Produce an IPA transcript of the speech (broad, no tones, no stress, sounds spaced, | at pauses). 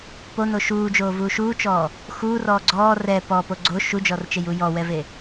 p o n o ʃ uː d͡ʒ oː v uː ʃ uː t͡ʃ ɔː | x uː r ɔː ɡ͡ǀ ɔː r ɛ p ɔ p o ɡ͡ǀ o ʃ u d͡ʒ ɔ r t͡ʃ e j u j ɔ w ɛ v e